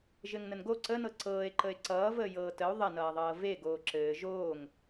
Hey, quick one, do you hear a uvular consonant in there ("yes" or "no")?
no